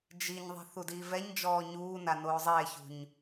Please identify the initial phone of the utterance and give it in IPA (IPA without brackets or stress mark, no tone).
d͡ʒ